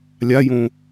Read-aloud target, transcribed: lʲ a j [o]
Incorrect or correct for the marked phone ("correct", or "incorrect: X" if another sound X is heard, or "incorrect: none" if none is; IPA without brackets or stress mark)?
incorrect: õ